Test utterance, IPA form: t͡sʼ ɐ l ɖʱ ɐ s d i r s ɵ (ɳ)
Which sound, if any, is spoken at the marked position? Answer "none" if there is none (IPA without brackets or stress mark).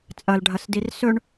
ɳ